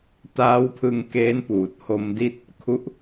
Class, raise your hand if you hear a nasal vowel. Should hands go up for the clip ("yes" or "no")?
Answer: no